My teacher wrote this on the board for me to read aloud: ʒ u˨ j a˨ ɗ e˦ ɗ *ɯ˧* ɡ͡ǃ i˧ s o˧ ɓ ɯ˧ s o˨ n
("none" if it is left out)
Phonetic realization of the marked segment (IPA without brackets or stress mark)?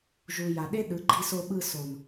ɯ˨˦